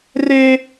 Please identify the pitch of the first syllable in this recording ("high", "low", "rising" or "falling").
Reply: high